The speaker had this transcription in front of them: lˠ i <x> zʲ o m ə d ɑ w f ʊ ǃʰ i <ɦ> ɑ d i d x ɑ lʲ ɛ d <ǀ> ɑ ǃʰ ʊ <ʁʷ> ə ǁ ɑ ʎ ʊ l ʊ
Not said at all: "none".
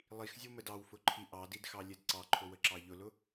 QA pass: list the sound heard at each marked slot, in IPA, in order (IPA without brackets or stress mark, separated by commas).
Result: x, ʔ, ǀ, w